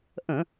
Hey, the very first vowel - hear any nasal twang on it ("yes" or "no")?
yes